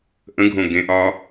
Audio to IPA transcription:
ʔə̃ɡʱõ ɡẽʔɒ

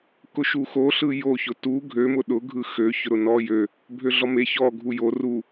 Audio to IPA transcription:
kʊʃuxoɬɯ joçʊ tu ɡʱømʊ ɗʊɡʱɯ xø çʊɾʊnɔ jø | bʱøɮɔme çɔ ɡʱujo ru

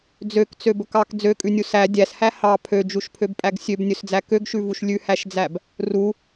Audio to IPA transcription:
d͡zøkt͡søbɵk ɑk d͡zøkʼʉnʲu sæ dʲæshæ hɑ pʰød͡ʒuʃpʰøbpʼæɡ sʲøbnʲɵsd͡zæ køɡʃʉvuʃ lʲʉhæʃd͡zæb | ru

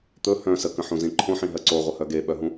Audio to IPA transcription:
t̪ɵ hœ̃ səkə̃ħũzĩ ǃʰõħĩɦɜ ǀoʁʷəhœ ɡeɓœɦũ

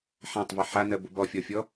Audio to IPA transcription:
ħãtˤvɛ ħanɜbʊ bɔfʲɔfʲɔ

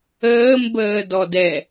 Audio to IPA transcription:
əːmbəː dɔdɛ

